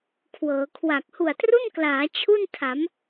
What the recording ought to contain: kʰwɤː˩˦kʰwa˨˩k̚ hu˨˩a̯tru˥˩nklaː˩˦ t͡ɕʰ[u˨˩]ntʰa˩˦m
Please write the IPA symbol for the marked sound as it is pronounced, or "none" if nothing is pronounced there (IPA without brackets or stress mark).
u˥˩